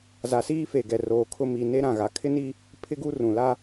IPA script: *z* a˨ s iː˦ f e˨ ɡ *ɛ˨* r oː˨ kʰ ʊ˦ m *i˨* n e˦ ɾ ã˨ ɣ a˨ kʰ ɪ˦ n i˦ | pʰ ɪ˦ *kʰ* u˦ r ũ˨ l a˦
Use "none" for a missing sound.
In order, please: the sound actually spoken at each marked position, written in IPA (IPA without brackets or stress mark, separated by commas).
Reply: z, ɛ˨, i˨, ɡ